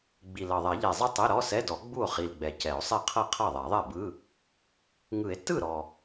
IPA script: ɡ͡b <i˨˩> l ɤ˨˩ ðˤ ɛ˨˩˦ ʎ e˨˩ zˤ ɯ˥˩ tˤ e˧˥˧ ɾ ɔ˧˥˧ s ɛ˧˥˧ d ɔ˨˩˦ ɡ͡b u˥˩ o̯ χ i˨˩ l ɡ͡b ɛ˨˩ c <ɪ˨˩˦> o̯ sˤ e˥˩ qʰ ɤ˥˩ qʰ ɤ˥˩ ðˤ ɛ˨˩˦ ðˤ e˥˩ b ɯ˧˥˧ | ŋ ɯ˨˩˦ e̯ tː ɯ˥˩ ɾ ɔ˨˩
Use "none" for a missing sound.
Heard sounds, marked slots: i˨˩, ɛ˨˩˦

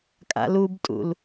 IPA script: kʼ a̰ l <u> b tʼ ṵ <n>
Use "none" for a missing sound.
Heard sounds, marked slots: u, l

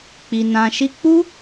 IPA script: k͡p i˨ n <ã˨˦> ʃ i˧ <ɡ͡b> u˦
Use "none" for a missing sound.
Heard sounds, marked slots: ã˨, k͡p

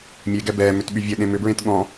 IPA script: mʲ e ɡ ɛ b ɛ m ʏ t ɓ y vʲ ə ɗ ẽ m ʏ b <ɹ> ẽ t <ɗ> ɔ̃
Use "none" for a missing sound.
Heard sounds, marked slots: ɹ, ɠ

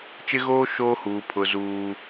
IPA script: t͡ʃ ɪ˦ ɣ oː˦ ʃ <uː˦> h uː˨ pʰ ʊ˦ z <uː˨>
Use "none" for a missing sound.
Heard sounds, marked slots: oː˦, uː˦

